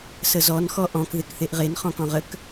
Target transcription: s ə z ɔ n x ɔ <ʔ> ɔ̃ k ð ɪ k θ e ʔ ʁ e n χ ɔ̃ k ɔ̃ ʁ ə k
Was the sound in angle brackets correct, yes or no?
yes